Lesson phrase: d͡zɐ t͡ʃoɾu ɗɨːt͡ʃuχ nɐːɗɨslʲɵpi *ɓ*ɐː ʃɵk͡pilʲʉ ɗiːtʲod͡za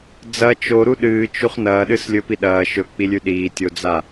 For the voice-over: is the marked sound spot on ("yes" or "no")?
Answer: no